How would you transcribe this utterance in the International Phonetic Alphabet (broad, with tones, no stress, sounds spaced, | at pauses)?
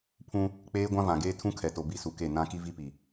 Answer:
pʰ ũ˦ | k͡p eː˦ ɡʷ ã˦ v ã˨ ɡ eː˦ tʰ ũ˦ kʰ ɛ˨ t o˨ b i˦ s u˨ k e˦˨ n ã˦ k i˦ v i˦ p i˨